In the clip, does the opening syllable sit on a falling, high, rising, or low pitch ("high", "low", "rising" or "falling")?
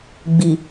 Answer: low